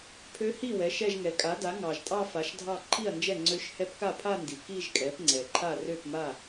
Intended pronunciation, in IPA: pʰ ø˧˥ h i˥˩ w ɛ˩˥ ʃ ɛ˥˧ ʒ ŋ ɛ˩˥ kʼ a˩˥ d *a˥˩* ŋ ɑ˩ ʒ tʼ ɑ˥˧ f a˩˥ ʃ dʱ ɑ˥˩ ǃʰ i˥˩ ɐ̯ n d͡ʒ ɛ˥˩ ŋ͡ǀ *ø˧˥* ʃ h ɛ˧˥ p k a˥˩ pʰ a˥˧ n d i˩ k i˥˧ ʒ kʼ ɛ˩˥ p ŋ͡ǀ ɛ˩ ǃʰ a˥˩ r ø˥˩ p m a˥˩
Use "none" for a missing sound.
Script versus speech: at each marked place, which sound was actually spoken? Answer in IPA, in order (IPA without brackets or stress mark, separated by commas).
a˩˥, ø˧˥